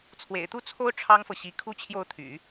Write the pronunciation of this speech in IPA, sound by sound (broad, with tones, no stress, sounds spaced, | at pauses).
t͡sʰ w ḛ˨˩ ɪ̯ t̪ u˥˩ t͡sʰ o˥ ʊ̯ ʈ͡ʂʰ ɑ˥ ŋ f ɤ˨ ɕ i˧˥ kʰ u˥˧ t͡ɕʰ j o˥˩ ʊ̯ t̪ʰ y̰˨˩˦